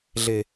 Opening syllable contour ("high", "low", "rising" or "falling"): low